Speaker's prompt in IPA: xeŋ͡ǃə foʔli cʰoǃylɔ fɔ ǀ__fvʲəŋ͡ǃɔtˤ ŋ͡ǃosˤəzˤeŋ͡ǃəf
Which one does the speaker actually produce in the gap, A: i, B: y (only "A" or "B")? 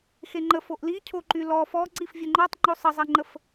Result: A